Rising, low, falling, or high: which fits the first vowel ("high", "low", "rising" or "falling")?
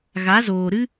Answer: rising